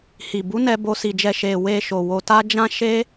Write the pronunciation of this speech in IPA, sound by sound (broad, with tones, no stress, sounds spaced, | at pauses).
h i˨ b u˨˦ n ɛ˧ b o˧ s i˨ d͡ʒ ɛ˧ ʃ e˨ w e˧ ʃ o˨ w o˨ t a˧ d͡ʒ ã˦ ʃ e˦